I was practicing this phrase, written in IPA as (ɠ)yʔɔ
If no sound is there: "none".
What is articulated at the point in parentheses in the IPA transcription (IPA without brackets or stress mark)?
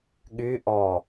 ɠ